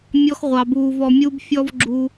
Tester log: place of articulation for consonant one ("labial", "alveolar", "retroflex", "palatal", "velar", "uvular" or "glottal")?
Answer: labial